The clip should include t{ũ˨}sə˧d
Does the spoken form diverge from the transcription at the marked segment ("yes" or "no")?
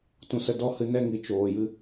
no